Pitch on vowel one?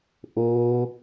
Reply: high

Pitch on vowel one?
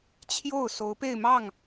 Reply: falling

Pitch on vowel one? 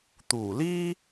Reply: low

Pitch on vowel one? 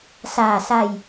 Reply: low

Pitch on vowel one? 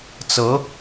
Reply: rising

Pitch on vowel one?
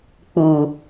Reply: low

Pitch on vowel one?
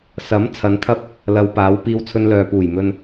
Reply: rising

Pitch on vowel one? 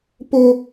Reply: high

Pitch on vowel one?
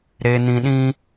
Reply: low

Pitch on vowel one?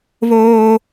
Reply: high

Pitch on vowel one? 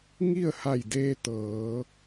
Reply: falling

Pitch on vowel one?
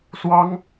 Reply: high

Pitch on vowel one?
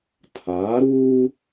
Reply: rising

